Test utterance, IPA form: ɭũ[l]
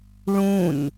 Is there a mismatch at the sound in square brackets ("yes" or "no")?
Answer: yes